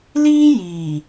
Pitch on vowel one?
high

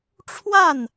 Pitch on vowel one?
falling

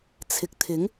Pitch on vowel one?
low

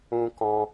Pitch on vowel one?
high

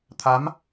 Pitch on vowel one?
rising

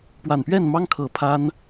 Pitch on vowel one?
low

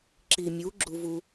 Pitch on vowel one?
low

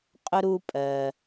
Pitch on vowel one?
high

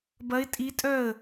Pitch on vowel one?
rising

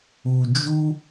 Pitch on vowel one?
low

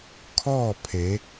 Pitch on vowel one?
falling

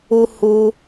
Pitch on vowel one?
high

